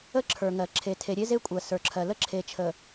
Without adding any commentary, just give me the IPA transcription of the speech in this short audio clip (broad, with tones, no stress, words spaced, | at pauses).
ə˦ ǁʰə˞˨ŋɜ˨ ǁʰe˨tʰe˨ ɾʲe˦ze˦kʷʼɜ˨ sə˞˨ǁʰɜ˨ lə˦ ǁʰe˨t͡ʃʰə˨